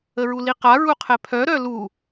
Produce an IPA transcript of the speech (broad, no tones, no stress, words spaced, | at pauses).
əɹuliqa ɹuqʰɛpʰœ ɾœlu